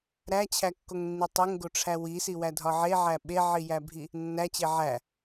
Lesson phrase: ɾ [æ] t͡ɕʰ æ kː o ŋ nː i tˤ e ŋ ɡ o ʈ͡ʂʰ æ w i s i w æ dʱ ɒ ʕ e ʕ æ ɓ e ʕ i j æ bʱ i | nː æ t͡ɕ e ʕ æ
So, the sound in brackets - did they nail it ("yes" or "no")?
yes